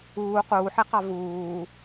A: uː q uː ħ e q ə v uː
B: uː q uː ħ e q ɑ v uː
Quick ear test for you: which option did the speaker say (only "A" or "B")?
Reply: B